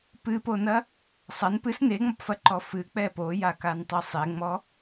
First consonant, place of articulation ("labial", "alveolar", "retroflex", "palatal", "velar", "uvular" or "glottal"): labial